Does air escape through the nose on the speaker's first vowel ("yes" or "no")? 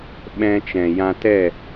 yes